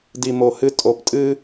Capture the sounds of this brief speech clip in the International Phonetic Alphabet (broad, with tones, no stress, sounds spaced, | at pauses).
d i˨ m o˨ h ɨ˧ tʼ o˨ p tʼ ɨ˦